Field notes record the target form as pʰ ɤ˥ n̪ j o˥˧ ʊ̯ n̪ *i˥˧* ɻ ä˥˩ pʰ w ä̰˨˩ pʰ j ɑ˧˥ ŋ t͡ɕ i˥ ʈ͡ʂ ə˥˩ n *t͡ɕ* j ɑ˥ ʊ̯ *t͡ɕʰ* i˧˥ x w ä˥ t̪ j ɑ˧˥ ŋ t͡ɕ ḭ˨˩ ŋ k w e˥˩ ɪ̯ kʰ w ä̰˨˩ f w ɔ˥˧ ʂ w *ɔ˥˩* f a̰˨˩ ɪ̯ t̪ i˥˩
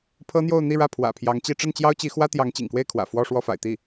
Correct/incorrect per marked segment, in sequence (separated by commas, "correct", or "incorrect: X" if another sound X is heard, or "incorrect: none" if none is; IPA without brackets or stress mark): correct, correct, incorrect: t͡ɕ, correct